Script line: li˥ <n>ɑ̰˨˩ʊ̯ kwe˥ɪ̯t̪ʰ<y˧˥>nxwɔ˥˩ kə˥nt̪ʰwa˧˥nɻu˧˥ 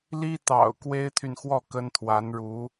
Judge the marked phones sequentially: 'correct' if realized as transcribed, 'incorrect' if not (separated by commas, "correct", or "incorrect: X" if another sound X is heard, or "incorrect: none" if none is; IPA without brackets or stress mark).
incorrect: t̪, incorrect: y˨